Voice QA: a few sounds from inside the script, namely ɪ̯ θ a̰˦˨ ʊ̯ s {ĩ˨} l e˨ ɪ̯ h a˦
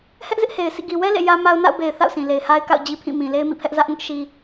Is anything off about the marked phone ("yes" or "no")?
no